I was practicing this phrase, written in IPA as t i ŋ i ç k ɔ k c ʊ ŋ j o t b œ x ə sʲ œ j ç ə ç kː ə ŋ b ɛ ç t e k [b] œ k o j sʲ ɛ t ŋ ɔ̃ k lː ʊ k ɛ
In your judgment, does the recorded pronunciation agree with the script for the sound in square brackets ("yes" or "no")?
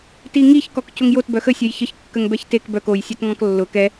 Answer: yes